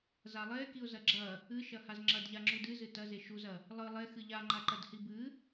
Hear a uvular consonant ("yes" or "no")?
no